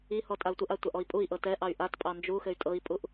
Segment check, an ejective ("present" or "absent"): present